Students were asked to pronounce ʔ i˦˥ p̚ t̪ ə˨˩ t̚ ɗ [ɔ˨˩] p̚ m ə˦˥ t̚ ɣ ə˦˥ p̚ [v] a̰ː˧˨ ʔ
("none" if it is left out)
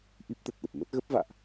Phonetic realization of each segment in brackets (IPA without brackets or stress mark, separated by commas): ə˨˩, v